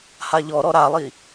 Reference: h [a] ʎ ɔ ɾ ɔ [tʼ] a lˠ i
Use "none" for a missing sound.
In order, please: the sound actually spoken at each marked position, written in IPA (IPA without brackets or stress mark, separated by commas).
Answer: a, ɾ